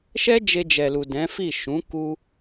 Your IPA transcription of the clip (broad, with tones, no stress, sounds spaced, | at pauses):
ʃ ɛ˦ d͡ʒ e˧ d͡ʒ ɛ˨ l u˨ d ɛ̃˨˦ f i˦˨ ʃ ũ˨˦ k u˦